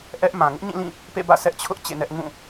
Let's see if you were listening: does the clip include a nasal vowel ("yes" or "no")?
yes